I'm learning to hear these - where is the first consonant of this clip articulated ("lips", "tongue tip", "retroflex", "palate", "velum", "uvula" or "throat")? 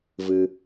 lips